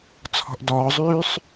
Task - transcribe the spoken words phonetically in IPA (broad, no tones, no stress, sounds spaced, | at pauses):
t͡sʰ ɔ̤ ʔ d ɔː zˤ yː sˤ